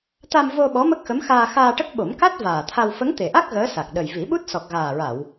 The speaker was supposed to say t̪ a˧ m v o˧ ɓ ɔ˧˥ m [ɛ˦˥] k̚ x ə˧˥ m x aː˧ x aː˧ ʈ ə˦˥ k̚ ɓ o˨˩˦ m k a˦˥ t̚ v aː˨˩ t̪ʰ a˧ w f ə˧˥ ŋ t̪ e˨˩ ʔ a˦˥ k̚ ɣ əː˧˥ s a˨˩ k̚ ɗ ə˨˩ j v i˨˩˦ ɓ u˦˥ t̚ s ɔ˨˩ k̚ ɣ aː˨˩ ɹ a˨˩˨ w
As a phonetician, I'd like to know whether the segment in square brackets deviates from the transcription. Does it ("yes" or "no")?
yes